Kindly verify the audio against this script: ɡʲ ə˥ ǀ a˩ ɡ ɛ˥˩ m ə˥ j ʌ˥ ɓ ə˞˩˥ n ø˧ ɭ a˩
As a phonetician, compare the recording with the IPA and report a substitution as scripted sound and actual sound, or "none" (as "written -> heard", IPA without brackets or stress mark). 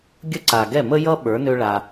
none